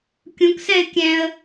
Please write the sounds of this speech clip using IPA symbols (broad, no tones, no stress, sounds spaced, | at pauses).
kʲ ũ k s ɛ ɪ̯ kʲ ɛ̃ ə̯